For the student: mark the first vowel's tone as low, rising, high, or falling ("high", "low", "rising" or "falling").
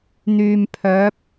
low